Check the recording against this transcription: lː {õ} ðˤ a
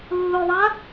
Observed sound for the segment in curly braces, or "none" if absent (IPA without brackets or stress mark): o